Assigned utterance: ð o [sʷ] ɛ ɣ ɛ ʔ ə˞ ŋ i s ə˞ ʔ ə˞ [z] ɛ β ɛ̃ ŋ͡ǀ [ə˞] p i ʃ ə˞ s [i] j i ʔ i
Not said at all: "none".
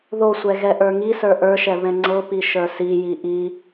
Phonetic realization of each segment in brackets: sʷ, ʃ, ɤ, i

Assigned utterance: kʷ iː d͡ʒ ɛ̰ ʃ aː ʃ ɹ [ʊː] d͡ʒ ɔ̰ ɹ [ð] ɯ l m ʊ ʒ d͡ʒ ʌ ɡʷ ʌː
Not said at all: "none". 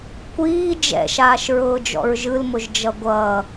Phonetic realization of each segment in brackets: ʊː, ʒ

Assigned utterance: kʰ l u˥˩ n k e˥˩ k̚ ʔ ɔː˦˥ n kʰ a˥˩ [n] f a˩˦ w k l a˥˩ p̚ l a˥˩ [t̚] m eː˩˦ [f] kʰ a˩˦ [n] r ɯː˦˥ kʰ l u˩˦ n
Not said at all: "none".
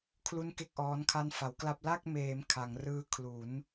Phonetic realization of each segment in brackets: n, k̚, m, ŋ

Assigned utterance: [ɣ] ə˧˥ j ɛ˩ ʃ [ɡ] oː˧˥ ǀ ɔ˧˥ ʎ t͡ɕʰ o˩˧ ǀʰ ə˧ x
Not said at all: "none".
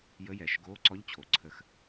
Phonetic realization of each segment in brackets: j, ɡ

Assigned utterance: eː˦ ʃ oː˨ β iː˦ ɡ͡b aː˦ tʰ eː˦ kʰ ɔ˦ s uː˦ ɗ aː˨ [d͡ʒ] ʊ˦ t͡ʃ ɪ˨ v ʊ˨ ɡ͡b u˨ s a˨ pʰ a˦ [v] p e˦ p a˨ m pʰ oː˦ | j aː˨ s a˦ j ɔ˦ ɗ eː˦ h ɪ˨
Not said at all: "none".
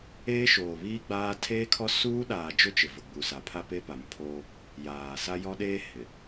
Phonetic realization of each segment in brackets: d͡ʒ, none

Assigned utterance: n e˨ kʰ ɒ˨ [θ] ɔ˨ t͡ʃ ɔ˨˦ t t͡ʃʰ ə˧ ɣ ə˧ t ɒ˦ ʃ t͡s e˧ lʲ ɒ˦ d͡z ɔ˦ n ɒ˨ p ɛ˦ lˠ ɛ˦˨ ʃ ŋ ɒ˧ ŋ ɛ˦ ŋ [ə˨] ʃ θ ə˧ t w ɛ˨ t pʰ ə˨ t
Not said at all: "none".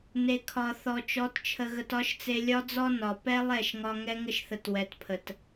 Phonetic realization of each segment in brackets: θ, ə˦

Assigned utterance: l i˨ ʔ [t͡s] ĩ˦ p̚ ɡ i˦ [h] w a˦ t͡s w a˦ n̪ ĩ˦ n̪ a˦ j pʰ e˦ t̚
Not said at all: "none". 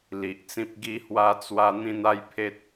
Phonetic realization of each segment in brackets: t͡s, h

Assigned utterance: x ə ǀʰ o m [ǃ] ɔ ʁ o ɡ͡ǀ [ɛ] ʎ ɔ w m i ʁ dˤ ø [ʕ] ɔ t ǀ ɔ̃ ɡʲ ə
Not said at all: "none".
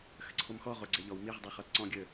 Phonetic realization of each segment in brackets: x, ɛ, χ

